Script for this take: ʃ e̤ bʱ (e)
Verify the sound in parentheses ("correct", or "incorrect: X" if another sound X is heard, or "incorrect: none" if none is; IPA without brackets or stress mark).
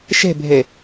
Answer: correct